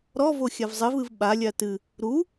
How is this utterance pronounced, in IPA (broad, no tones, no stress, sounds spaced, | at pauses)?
ɾ ɔ v o xʲ a v zˤ ɘ v ɨ v ɓ a lʲ a t ɨ | ɾ u